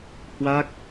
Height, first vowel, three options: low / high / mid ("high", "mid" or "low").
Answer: low